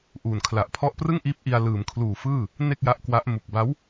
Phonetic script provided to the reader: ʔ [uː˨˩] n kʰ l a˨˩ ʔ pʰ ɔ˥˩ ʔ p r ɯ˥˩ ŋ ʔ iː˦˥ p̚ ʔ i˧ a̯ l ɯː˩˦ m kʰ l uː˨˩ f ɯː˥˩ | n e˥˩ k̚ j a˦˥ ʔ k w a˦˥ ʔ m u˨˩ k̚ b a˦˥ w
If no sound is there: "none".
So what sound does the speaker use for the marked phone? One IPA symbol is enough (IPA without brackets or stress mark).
uː˨˩